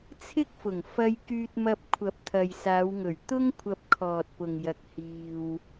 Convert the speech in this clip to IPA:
t͡sʰɪ˥k̚fʊ˨˩ŋ fɐ˧jkyː˧t̚mɐ˧p̚ kʷʰɐ˨˥p̚t̪ʰɐ˨jsaː˨˧wŋɵ˨˩ɥ t̪ʊ˥ŋ kʷʰɐ˧p̚kʰɔː˨t̚pʊ˨ŋjɐ˨k̚ hiː˧w

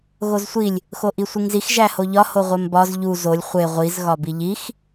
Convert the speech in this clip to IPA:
ɣozsʷilʲ | xoʔisʷiŋzix ʒæhoʎɒ hoʁʷembɒz ʎu zolʲ χʷe ʁʷiz ɣɒbiʎix

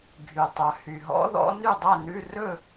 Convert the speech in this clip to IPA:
ɡʱy˩tˤœ˩ hy˩ɦɔ̰˨˦ðɔ̰˨˦ ny˥˨dˤæ˥˨nʉ˧˥˧ rɵ˥˨

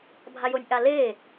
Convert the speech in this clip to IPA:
bʱajonʲʔaleː

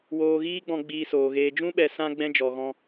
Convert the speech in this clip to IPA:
woː˧ɣiː˦ɡ͡bɔ̃˧ ɡ͡biː˧soː˨ɣeː˧ d͡ʒũ˦ ɓɛ˧sã˦ ɡ͡bɛ̃˦d͡ʒɔ˨ɣɔ̃˧

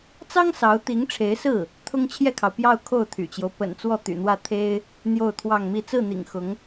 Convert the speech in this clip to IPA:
t͡sɑ˥ŋ sɑ˧˥ʊ̯t̪i˧˥ŋʈ͡ʂʰe˧˥ɪ̯sɹ̩˥˩ | t̪ʰʊ˥ŋt͡ɕʰjɛ˥˩kʰɑ˩ʊ̯ pjɑ˥˧ʊ̯kʰo˥˩ʊ̯t̪ʰy̰˨˩t͡ɕjo˦ʊ̯ pə̰˨˩nt͡swɔ˥˩ t̪y̰˨˩n̪wä˥˩ t̪ʰe˥ɪ̯ | n̪jo˥˧ʊ̯t̪ʰwɑ˥˧ŋmi˥˧ t͡sɹ̩˥˩n̪ḭ˨˩ŋ xʊ˧˥ŋ

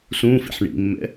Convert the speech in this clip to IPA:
sũfḭħ ɳḭmːɛ̰

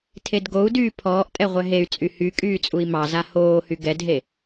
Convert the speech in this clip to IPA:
tʰedɡou̯dyː pʰɔːʔtʼɛ ʁʷɛɦey̯t͡sʼy hy kʼyːt͡sʼui̯mɑza hoːhy ɡɛdɦe

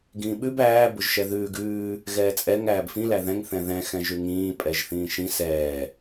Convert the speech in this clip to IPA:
ɡĩːɓʉb æː bʊʒʃɛðʉːɡ ʉː | ɣɛːt͡sʼɛŋ æːbfĩ læðɛ̃ŋ θɛ̃ðɛ̃ xɛ̃ʒʉŋĩː pʼɛʒθĩːʃĩ sɛː

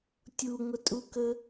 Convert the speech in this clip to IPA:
tʲuŋʷətʼukə

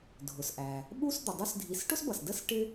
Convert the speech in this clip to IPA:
dʱʊ˩sʔæ˩ | ɓu˦sd̪ə˩ dˤu˦sdʱi˨s ʈʊ˥sbʌ˩sdə˥s ʈɪ˥

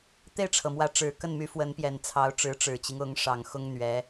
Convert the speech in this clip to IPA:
t̪e˥˩ɪ̯ʈ͡ʂʰɤ˩mwä˧˥ʈ͡ʂɻ̩˨˩ kə˥˩nmy˧˥fwə˧˥npjɛ˨˩n t͡sʰɑ˧˥ʊ̯ʈ͡ʂɻ̩˧˥ ʈ͡ʂɻ̩˨˩t͡ɕi˦ŋʊ˧˥ŋ ʂɑ˨˩ŋxʊ˥ŋ n̪ɥɛ˧˥

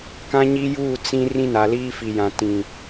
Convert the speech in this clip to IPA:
kã˦ɲi˦juː˦˨ t͡sĩ˦ rĩ˦na˨ liː˦fi˨jã˨ tĩ˨

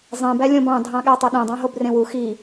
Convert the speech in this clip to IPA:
zˤẽbæ lʲõbɑ̃ dʱɑ̃ɠætˤɯɗẽ dˤɑ̃ɦobrẽwu xi

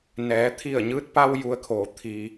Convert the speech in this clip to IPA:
nɛː˩˧t̪ʰi˧˩ə̯ɲɯː˧t̚pa˧w ju˧ə̯kʰoː˩˧ t̪ʰiː˩

